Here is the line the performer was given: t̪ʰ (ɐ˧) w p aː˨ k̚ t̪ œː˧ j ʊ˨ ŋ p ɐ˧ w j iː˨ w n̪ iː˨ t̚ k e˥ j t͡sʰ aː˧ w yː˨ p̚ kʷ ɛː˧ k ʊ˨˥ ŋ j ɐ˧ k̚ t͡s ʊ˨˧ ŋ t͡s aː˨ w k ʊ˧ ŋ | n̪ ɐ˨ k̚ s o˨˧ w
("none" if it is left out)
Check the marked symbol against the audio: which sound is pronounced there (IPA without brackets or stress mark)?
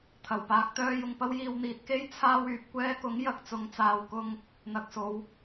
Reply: ɐ˨˩